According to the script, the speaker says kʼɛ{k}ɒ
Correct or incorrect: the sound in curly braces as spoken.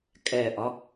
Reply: incorrect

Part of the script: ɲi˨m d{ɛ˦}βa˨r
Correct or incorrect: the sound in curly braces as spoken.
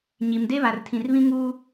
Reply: incorrect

